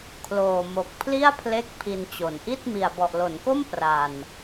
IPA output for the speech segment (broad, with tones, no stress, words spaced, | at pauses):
kʰloː˨˩mo˨˩k̚ pʰli˥˩a̯pʰle˦˥k̚ pʰi˧nt͡ɕo˨˩nʔi˥˩t̚ mi˨˩a̯bɔ˨˩ʔlo˩˦nko˥˩m pra˨˩n